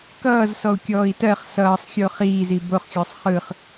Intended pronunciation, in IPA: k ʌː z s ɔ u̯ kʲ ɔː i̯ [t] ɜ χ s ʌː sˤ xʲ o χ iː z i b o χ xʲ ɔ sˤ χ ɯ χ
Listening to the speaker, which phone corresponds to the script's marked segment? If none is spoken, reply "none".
t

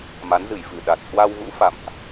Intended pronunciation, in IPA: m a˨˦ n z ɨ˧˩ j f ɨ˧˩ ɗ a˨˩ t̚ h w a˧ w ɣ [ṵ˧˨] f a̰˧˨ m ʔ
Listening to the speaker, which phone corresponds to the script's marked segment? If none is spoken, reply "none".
ṵ˧˥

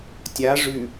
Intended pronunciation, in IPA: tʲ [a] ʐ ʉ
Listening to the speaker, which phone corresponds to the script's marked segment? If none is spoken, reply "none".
a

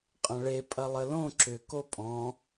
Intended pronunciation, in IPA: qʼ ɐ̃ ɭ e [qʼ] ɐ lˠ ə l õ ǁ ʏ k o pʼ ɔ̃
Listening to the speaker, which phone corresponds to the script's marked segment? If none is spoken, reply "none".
pʼ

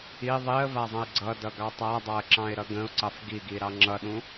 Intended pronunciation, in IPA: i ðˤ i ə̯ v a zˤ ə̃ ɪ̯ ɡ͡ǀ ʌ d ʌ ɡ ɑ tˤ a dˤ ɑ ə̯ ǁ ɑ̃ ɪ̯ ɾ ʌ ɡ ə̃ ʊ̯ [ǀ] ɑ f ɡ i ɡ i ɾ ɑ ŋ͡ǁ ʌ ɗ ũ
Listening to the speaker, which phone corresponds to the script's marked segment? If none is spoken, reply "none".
ǀ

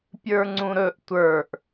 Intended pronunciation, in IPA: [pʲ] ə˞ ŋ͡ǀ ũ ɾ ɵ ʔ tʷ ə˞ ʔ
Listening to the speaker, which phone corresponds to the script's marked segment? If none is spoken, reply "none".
pʲ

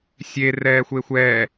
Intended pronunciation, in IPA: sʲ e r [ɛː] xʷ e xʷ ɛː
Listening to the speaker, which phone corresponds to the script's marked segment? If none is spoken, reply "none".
ɛː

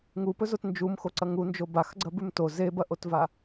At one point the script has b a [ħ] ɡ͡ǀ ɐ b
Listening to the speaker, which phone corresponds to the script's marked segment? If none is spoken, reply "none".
x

